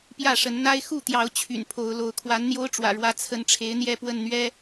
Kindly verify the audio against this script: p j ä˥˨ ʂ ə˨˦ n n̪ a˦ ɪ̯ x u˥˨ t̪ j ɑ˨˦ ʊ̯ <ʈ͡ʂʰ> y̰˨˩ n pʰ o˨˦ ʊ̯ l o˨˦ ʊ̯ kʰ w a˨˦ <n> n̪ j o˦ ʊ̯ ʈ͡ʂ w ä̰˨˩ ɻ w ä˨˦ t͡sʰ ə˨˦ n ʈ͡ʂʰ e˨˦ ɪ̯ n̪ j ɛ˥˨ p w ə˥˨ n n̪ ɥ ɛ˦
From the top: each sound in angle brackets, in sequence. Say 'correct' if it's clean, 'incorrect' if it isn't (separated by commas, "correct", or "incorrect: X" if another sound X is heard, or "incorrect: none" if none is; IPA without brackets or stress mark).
incorrect: t͡ɕʰ, correct